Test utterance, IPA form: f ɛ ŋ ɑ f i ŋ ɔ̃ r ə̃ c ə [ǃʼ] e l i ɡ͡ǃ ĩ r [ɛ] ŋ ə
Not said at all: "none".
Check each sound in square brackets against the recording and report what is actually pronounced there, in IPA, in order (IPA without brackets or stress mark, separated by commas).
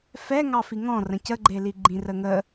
ɡ͡ǃ, ə